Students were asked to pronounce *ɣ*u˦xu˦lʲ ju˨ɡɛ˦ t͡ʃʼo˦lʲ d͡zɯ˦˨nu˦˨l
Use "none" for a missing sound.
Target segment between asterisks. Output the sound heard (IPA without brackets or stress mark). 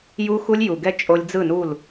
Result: j